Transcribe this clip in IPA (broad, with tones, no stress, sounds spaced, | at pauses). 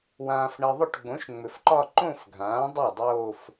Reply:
w ãː˨ f ɳ ɛ˨ ðˤ ʏ˥˩ ʈ ɡ͡b õ˩˥ ʃ ŋ͡m ʏ˨ f ǃ ɒ˥˧ ǃ õ˥˧ f ɡʱ ãː˩˥ dˤ ɤ˥˩ dˤ oː˥˧ f